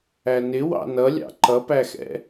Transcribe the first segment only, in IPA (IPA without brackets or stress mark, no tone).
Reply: æ